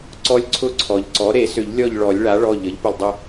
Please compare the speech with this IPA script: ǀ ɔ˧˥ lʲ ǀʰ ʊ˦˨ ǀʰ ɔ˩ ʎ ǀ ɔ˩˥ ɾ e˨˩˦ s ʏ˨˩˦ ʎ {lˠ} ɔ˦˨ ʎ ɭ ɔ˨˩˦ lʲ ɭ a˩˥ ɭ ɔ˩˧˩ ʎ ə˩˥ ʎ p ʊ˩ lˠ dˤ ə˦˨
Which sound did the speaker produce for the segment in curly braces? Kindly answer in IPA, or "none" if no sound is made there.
lʲ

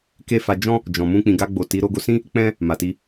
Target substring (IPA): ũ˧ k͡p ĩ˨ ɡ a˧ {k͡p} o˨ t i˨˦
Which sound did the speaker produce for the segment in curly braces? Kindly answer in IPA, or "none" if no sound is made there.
ɡ͡b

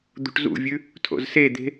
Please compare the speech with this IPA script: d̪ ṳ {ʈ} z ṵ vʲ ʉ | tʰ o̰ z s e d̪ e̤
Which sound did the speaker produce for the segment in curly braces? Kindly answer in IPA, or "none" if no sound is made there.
ʈ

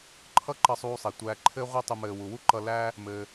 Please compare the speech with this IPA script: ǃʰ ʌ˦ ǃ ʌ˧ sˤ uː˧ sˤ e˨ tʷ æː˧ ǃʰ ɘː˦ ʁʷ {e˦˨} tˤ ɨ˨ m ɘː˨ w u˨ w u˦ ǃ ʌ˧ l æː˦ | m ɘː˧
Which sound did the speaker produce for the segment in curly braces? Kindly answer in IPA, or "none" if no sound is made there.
e˧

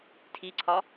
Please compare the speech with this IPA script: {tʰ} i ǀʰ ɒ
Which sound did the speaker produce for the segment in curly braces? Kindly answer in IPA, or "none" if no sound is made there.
tʰ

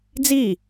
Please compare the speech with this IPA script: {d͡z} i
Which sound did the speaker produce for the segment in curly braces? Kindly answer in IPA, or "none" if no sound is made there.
d͡z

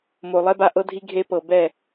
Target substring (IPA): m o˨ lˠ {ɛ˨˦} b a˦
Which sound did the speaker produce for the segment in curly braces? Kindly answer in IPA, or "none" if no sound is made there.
ɛ˦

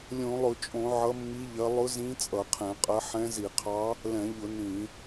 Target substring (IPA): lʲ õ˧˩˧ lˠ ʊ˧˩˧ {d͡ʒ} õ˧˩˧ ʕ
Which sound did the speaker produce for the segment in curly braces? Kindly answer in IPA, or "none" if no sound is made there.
t͡ʃʼ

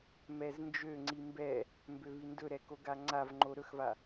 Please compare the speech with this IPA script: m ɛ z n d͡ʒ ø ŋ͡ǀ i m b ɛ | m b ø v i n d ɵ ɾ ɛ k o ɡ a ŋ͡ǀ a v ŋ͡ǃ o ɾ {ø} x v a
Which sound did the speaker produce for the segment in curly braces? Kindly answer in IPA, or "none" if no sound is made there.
ɵ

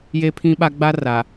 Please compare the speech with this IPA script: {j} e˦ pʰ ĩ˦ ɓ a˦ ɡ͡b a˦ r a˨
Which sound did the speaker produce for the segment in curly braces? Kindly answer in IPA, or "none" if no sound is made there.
j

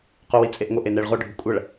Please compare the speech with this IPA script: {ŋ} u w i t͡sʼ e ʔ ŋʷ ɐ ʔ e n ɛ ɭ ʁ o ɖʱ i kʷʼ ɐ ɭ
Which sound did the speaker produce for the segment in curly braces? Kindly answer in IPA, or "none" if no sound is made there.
q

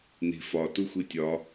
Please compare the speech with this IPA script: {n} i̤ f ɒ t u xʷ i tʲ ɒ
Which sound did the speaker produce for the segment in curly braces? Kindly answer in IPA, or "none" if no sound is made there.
n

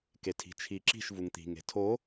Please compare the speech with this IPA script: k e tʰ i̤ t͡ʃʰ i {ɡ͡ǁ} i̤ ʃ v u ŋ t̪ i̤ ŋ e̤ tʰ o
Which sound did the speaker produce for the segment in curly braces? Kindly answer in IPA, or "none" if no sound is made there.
ǁ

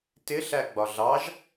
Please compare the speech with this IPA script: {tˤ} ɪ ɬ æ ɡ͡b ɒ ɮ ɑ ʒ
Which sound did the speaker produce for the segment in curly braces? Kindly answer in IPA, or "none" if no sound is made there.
t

